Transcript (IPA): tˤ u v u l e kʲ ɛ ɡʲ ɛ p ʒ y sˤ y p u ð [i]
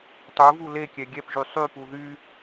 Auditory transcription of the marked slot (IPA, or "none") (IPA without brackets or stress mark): y